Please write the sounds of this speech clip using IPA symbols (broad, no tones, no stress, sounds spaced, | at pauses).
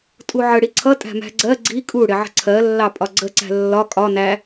tʼ u ʕ ə ɽ i ǀʰ ʌ tʼ æ̤ m æ̤ ɡ͡ǀ ɜ ɡ͡ǀ i kʼ u ɽ ɪ ʕ ə̤ ǀʰ ɜ lː ɑ pʼ ɒ ɡ͡ǀ ə ǀ æ̤ lː ɒ kʼ ɒ n æ